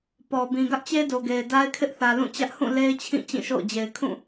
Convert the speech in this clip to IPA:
p ɔ˨ b ĩ˨ ɡ ä˦ ʔ t͡ɕ e˦ d o˨ ɡ e˨ ɪ̯ d a˦ ɪ̯ kʰ ɪ˦ ʔ θ ä˨ l ũ˦˨ t͡ɕ ä˦ ʔ h ũ˦˨ l e˦ ɪ̯ t͡ɕʰ ĩ˦˨ t͡ɕ ĩ˦˨ ʃ o̰˦˨ ʊ̯ d͡ʑ e˨ ɪ̯ kʰ ũ˦˨

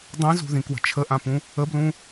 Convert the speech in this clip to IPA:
dˤ ĩ z ṳ ð ĩ k w ə̤ t͡ʃʰ ə ʔ ã p ũ | ə b l ũ

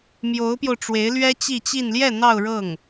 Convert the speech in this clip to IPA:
m j o˧˥ ʊ̯ p j o˧ ʊ̯ ʈ͡ʂ w e˧˥ ɪ̯ l ɥ ɛ˥ t͡ɕ i˥˧ t͡ɕ i˥˧ n l j ɛ˥˧ n̪ ɑ˥˧ ʊ̯ ɻ ɤ˥˩ ŋ

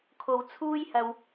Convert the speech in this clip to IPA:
kʰ o˧ w t͡sʰ uː˥ j h ɐ˧ w

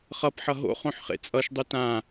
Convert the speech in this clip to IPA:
χ ʌ p ħ ʌ ɦ o̰ χ õ ħ χ ḛ t͡sʼ ʌ ʃ dˤ u t ã

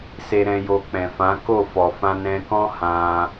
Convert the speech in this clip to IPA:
s e˧ ɾ ɛ̃˧ j o˧ k͡p ɛ̃˨ f ã˨˦ k o˦˨ f ɔ˨ f ã˧ n ɛ̃˧ k ɔ̃˦ h ã˧

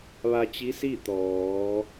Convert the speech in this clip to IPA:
ʋ a˧ t͡ɕ i˧˥ s i˥˨ t̪ ɔː˩˧

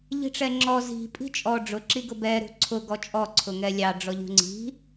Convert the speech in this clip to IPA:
ʎ i̤ ʈ͡ʂ ɛ ŋ͡ǁ ɔ z i̤ pʼ i̤ t͡ʃʼ ɔ ɖ͡ʐ ʊ ǁ i ɡ ʊ b ɛ ɾ ṳ ǀʰ ʊ ɡ ɔ t͡ʃʼ ɔ ǀʰ ʊ ŋ ɛ lʲ ɑ ɖ͡ʐ ɔ ʎ ṳ ŋ͡ǀ i̤

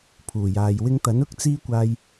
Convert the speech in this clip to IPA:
pʰ uː˨˩ j aː˨ j w ɪ˧ ŋ t̪ ɐ˨˥ n ʊ˥ k̚ t͡s iː˥ kʷ aː˧ j

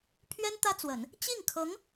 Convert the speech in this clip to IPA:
pʰ ɥ ɛ˥ n t̪ ä˥ t͡s w ə˨˩˦ n | t͡ɕ i˥˩ ŋ kʰ ɤ˧˥ ŋ

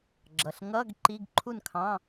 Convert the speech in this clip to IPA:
ɡ͡ǁ ʌ˩˧˩ ɬ ŋ ʌ˧˥˧ ɡ ǃ i˧˥˧ ɡ ǃʰ u˥˨ n kʰ ɑ̃˧˥˧

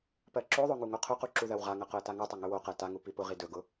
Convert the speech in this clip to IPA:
p ɜ ǁ o ðˤ o ŋ u ŋ o qʰ ʊ q u ǁ u ð ɜ w ʁ a ŋ ɐ q ʊ ə̯ t a ŋ u tˤ ɐ ŋ ɵ w o q ɜ t a ŋ u p i p ʊ ʁ i d ɵ ɡ ʊ

